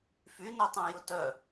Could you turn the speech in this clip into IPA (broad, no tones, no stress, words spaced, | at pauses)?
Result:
fynœtˤã jʊtœ